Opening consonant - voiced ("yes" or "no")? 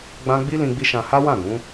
yes